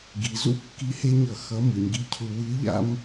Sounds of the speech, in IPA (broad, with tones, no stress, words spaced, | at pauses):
ɡi˩˧zṵ˥ kːi˧˥he˥ɲʌ˧ xʌ˧˥ mɯ˩˧ɲɡi˧˥cʰu˧ wɯ˧˥ ʎa̰˥m